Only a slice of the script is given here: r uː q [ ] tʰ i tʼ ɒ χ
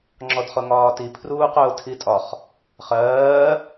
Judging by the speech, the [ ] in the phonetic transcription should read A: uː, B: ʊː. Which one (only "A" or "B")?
B